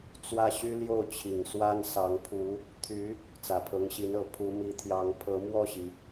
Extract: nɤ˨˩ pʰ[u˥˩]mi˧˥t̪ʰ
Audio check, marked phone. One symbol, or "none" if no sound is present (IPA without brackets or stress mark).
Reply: u˧˥